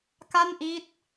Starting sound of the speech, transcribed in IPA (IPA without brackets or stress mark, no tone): k